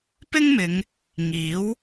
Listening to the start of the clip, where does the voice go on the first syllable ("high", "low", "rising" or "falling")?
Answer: high